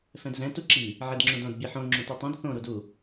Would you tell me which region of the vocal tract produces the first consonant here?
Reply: lips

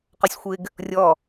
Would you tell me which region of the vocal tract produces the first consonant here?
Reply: uvula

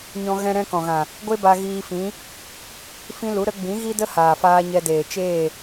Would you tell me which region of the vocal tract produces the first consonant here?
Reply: palate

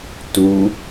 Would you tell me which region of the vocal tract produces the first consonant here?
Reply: tongue tip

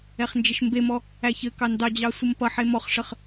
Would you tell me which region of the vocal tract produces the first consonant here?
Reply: uvula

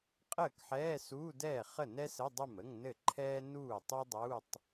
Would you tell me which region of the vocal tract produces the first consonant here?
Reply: uvula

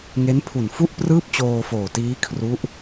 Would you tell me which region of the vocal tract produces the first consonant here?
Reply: velum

